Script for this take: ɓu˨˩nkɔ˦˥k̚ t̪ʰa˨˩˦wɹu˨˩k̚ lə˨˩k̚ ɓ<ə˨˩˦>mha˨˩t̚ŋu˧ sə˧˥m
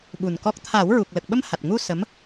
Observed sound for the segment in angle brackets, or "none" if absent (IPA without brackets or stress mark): ə˧